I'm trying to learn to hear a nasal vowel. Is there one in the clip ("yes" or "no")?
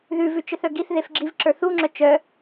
no